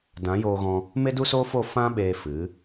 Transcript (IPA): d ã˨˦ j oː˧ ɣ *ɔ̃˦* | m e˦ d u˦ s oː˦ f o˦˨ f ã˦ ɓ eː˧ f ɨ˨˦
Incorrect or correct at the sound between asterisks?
incorrect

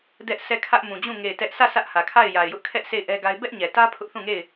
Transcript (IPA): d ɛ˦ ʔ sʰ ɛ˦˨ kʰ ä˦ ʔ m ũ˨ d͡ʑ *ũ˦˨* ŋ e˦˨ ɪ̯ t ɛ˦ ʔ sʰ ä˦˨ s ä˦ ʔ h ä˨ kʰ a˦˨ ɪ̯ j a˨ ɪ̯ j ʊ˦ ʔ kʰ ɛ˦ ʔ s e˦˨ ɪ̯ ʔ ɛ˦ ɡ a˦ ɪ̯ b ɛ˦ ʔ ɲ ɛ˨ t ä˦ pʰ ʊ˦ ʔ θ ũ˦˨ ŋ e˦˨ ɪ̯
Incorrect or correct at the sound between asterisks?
correct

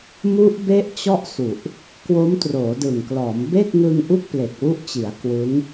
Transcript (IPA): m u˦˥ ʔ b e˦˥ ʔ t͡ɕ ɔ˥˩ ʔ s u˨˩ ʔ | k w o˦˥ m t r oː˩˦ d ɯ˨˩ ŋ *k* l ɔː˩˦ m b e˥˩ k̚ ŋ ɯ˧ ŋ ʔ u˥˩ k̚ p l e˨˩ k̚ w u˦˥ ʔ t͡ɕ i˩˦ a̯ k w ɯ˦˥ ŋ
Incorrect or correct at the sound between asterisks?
correct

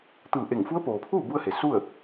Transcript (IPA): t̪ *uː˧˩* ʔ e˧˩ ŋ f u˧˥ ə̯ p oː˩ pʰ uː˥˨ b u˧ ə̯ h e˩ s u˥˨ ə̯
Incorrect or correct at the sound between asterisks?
incorrect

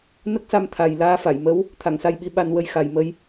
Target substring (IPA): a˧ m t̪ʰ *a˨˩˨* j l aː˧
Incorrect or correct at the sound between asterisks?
incorrect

